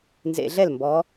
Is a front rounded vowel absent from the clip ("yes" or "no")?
yes